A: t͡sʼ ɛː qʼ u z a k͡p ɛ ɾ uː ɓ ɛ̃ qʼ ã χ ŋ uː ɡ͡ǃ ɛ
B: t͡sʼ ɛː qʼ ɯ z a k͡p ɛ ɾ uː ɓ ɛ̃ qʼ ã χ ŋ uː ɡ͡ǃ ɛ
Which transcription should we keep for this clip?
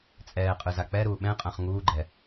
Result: B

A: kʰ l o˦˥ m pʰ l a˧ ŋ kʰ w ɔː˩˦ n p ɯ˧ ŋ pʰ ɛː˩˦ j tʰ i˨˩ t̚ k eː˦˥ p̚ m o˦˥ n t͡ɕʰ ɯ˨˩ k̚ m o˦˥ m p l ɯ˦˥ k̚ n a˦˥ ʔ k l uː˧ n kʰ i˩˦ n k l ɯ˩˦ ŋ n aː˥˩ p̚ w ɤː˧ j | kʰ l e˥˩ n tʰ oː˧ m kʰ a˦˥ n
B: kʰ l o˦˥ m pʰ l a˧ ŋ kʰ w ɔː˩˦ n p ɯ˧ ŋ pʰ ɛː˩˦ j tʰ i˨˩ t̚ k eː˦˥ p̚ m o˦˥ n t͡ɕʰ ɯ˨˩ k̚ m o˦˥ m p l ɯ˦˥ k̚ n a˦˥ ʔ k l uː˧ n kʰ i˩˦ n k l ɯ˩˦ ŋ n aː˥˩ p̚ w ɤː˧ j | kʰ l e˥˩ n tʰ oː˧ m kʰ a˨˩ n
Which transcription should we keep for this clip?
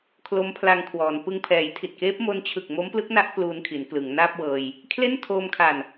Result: B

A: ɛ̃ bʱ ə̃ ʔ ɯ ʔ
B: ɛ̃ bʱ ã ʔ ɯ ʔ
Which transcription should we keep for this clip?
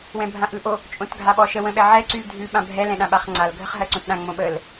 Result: B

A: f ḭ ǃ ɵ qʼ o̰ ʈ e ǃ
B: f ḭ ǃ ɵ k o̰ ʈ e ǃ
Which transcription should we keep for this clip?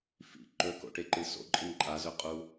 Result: B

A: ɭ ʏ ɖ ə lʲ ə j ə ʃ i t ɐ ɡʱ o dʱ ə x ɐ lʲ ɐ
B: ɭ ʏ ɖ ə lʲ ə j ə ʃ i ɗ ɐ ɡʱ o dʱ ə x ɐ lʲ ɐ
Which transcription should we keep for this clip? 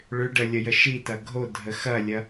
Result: A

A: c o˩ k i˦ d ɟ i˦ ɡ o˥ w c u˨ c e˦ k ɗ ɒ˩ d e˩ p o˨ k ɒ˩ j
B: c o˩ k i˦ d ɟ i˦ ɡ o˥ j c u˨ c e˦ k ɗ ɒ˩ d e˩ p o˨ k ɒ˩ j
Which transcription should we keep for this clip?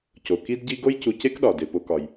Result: B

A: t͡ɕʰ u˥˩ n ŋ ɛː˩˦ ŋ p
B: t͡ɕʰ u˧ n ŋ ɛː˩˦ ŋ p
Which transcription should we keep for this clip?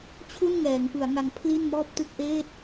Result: A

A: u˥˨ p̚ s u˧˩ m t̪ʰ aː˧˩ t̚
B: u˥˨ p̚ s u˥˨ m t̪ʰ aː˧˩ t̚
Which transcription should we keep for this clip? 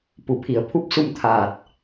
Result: B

